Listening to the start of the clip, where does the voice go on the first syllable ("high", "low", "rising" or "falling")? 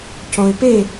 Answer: low